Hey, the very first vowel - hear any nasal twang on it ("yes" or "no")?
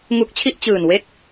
no